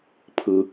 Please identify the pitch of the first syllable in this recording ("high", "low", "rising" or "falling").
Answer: high